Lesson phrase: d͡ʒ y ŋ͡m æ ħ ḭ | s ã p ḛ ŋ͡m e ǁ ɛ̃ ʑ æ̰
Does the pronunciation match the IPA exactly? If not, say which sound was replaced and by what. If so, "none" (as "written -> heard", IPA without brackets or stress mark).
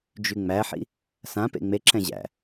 none